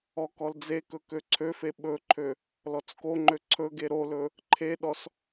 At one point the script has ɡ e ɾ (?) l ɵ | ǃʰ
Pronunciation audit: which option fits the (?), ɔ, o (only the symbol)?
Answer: o